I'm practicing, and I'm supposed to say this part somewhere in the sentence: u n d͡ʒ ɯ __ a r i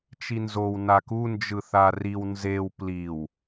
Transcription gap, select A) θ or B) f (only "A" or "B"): A